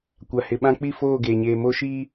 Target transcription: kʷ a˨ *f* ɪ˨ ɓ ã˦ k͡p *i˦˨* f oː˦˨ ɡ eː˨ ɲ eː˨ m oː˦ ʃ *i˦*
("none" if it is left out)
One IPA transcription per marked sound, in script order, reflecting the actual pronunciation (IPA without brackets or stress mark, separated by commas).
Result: h, i˦˨, iː˦